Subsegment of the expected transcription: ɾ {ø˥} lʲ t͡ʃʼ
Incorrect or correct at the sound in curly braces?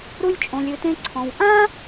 incorrect: u˥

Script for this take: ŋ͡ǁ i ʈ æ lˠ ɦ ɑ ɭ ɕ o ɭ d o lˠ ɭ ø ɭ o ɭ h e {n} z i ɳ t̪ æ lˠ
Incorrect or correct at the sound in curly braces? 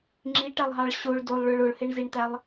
incorrect: ɳ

